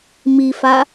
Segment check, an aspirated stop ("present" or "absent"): absent